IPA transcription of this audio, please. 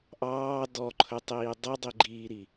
ʔɑː dɔǃʰɵtˤiː dˤidˤiɡ͡ǃiːɾi

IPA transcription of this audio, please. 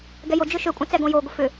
ɡɛjod͡ʒø ʃøkʷʼɐ̃ t͡sɛɡõjoɡʷə fʏ

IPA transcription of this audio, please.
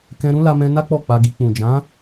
kɛ̃˧ ɾũ˦la˧mɛ̃˧na˦ k͡pɔ˦˨k͡pa˧ɡi˧k͡pũ˨ d͡ʒã˨˦

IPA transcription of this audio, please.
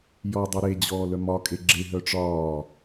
jɔdˤɛ ɾed͡ʑɔːlœ mɒkʼe ɡ͡ǁeɦœ ʈ͡ʂɒː

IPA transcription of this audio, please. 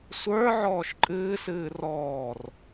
sʷə˞ ʕɔːʃǃʼɨːsɨː rɔːr

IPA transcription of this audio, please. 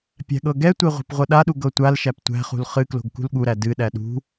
pʲæ̤ɠɤɡɛtʷe ʁʷɛ̤pʁʷɤɗaɗu ɡɤtʷalʃæp tʷæ̤χṳl χɨklo̤ɡ kṳlɠuɾæ dɨɗæ ɗṳ

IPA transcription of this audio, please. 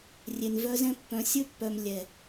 rʲe˨nvœ˧zɛ̃˧ pːœ̃˨ sʲɵ˧pːœ˨m lʲɛ˨

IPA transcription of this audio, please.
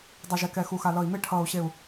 dˤʌ˧˩ʒɛ˧˩kɛ˧˩ xu˧˩xa˧˩ lʌ˧˩i̯me˥˧ʈʰʌː˧˩u̯ɕe˧˩u̯

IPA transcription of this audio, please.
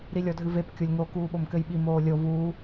ɾilʲɔdʱɨvep kʲolʲŋo kuːɓomkɘjɓi moːlʲo vuː

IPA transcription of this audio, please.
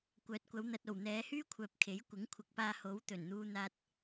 kʷœː˨˥t̚kʷɐ˨˧w n̪ɐ˨t̚o˨˩w n̪ɛː˨˧hyː˥kʷʰœː˨p̚ kʰe˨˥jkʷɪ˨˥ŋkʷʰɪ˨k̚paː˧ ho˨˥w t̪ɵ˨˩nn̪uː˧n̪aː˧t̚

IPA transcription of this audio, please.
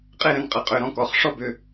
qʼe˥˧ɾə̃˩˧˩nqʼə˩˧˩ qʼʏ˩˧˩ɾɔ̃˥˧kɔ˩˧˩χ ʂɔ˥˧bʏ˩˧˩

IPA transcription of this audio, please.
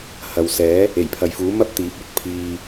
hɐ˨wsɛː˨˥ | e˨˩jpʰɐ˨jfuː˨˥ mɐ˥p̚t̪iː˨˥p̚ ɵ˨˥t̚ pʰiː˧

